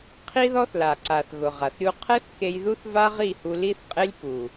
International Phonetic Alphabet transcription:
qʰ i˦ ð ɔ˦ θ l a˨ ǀ a˨ θ ɣ ʊ˨ ʁ a˨ θ ɾʲ u˧ qʰ ɛ˦ θ k e˧ j ð u˦ θ v a˦ ʁ i˦˨ h u˧ l i˦ θ qʼ e˦ lʲ p u˨

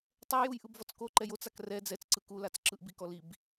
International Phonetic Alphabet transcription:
tˤ ɛ j u j ʔ ɯ b v ɔ t͡s k o ǃ ɛ j o t͡s a k r ɛ d͡z ɛ t͡s ǀ ɯ k u l a t͡s ǁ ɯ ʔ b i k ɔ l i b

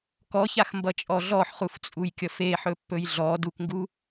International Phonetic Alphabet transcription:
k ɔ ç a x m b ʌ t͡ʃʼ ɔ ɮ ɔ ħ χ u f t͡sʼ u j kʲ ʌ f e ħ ɵ pː ɵ j ɮ ɔ d u k ŋ ɡ u

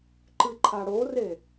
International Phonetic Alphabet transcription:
ǃ ɨ ǃʰ a ɽ o r e

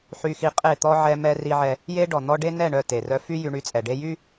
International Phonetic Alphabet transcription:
ħ y˦ x i˦ qʼ e˦˨ t̪ ɔ˦ ʕ ɛ˦ m ɛ˦ r i˦ ʕ ɛ˦ | j e˦ ɖ ɔ˨ n̪ ɔ˦ ɖ e˦ n ɛ˦˨ ɳ œ˦˨ t e˨ r œ˦ f y˦ j y˦ ɳ y˦ t͡sʼ ɛ˨ ɖ e˦ j y˦

